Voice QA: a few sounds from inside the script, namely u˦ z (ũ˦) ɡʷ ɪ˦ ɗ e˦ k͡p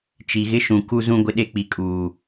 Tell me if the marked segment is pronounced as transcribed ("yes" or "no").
yes